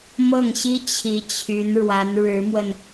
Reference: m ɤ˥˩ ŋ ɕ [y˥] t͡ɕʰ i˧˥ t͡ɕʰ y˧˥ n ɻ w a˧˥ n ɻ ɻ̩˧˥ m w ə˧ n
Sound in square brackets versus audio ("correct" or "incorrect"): incorrect